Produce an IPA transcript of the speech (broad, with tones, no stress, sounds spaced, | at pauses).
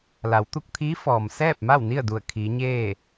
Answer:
l a˩˧ w t̪ u˧ k̚ t̪ʰ iː˧˥ f ɔː˩ m s ɛː˥˨ p̚ m a˥˨ w n i˥˨ ə̯ d u˧˩ ə̯ kʰ iː˩˧ ɲ eː˥˨